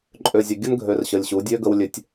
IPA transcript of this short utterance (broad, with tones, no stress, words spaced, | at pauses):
ǃʼø˨zʲa˨ɡʲə˦n ɡʱø˨rɕə˨lʲɕu˨˦dʲø˦ ɡə˦wlʲø˦tʲ